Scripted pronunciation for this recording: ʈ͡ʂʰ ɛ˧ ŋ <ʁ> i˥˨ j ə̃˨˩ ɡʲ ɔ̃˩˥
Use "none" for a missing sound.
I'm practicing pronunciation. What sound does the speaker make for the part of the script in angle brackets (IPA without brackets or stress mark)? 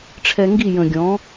ɡ